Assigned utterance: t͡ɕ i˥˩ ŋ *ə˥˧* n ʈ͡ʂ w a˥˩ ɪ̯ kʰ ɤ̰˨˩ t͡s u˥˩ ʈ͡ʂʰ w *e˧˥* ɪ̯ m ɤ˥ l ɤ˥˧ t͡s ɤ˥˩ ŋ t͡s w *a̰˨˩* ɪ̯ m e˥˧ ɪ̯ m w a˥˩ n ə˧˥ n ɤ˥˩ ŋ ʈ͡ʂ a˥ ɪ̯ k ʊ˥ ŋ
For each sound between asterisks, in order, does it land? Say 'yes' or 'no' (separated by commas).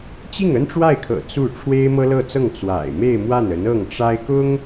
no, no, yes